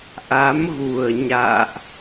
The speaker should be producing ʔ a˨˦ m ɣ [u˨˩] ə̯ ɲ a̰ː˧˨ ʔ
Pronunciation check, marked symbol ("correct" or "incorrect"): correct